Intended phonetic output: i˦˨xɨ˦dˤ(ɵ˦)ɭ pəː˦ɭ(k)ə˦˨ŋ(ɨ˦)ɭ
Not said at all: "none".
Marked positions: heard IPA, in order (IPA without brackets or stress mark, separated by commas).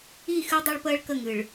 ɵ˦, k, ɨ˨